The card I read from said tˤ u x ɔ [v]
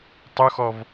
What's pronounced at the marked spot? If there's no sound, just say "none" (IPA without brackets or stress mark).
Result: v